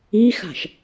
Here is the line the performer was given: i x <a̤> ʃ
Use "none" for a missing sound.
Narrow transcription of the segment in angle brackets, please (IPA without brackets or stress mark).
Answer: a̤